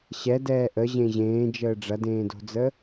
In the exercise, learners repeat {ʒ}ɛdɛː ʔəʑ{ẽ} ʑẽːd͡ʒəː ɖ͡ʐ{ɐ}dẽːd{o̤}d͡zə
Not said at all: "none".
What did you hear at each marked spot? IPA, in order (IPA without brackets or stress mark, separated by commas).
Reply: ɕ, ẽ, ɐ, o̤